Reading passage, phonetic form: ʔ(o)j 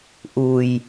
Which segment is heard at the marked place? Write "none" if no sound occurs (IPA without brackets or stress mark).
u